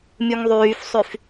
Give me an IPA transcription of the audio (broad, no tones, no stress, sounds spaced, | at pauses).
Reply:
mʲ u ŋ ðˤ yː f sˤ y f